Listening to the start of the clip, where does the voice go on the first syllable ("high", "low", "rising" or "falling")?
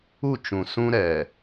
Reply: falling